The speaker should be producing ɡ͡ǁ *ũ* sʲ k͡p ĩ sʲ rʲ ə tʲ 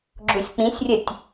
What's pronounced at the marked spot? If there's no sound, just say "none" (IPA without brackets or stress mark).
u